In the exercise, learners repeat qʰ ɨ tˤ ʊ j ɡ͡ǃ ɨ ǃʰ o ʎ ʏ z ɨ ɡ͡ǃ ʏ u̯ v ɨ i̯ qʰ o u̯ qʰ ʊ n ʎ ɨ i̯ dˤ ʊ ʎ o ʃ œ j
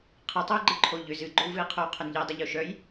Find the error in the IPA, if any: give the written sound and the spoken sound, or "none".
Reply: none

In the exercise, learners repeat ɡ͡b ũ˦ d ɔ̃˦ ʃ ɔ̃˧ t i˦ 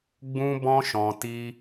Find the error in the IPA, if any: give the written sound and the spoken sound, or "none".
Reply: d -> b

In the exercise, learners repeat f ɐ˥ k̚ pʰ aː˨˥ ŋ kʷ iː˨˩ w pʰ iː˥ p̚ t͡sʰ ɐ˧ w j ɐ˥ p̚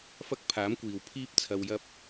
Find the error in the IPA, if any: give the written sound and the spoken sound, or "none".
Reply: ŋ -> m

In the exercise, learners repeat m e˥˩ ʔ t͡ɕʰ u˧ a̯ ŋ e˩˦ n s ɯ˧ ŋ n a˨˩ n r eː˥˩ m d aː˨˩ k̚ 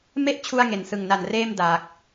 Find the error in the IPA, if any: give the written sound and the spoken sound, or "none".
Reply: ɯ˧ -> ɯ˨˩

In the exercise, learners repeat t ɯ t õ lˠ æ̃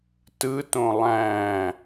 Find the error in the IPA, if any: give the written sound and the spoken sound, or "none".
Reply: none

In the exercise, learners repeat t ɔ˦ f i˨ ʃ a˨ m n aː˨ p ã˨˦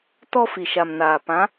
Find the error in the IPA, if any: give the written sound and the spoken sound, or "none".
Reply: none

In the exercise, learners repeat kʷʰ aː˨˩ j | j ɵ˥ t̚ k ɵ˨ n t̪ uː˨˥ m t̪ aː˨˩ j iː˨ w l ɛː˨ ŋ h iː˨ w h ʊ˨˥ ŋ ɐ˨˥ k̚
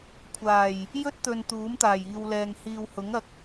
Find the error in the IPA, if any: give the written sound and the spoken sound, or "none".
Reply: k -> t̪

